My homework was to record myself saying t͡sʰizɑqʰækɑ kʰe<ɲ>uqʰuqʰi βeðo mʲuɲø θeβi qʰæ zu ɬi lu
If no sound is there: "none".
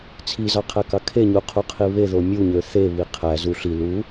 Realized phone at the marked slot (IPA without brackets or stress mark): ɲ